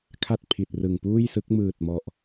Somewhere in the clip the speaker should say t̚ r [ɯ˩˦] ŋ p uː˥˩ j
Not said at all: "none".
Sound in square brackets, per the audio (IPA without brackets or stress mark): ɯ˨˩